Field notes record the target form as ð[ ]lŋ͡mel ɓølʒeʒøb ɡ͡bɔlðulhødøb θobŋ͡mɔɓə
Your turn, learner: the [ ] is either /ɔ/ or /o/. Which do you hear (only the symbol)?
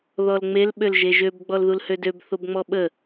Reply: ɔ